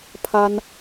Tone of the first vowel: high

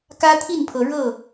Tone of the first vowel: high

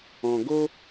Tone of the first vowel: low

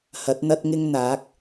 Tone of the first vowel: rising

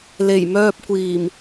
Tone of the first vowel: low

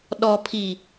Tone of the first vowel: low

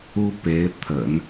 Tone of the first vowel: high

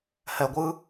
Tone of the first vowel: low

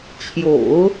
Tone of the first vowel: low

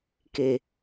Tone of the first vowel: low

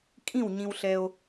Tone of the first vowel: falling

